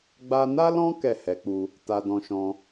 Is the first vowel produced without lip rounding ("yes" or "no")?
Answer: yes